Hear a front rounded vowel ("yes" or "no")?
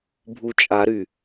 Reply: yes